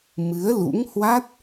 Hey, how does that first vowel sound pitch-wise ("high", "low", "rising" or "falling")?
rising